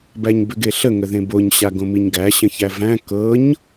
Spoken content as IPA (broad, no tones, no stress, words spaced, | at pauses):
bæɲbʏɡeɬə ŋəðẽboɲ ɕaɡõmiɲɡæ ɕə̃çævæ̃ kɤɲ